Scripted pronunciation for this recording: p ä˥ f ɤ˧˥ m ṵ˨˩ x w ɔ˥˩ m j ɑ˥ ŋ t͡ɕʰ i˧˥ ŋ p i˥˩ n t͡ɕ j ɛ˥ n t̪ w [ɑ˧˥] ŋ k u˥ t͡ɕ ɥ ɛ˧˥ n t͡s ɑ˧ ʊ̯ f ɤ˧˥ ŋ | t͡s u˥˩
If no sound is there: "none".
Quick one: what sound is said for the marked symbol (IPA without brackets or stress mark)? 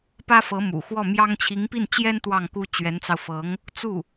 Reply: ɑ˥˩